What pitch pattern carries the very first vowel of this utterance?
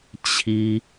high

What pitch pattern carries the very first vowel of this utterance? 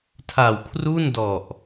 low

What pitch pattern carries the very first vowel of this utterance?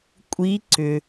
rising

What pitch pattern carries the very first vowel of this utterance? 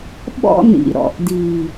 high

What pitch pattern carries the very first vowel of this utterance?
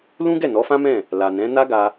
high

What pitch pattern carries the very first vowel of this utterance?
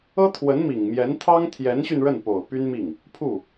high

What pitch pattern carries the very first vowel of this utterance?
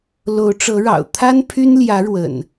rising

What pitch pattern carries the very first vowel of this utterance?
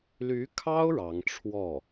rising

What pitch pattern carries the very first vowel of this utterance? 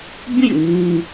falling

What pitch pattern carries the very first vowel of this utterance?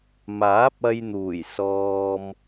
rising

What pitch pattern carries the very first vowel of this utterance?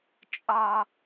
high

